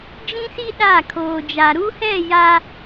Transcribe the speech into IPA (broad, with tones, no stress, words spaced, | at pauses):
d͡ʒĩ˦si˦ ɗa˦˨kʰoː˨d͡ʒa˨ ɾu˦hɛ˦˨ ja˦